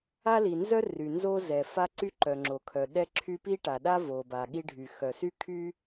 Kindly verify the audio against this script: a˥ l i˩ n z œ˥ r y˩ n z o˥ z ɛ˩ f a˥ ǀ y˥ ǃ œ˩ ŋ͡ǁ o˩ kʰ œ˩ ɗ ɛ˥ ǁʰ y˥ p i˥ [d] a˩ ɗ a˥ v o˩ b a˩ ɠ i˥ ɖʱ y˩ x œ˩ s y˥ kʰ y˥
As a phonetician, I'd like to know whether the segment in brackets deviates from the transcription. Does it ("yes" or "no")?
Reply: yes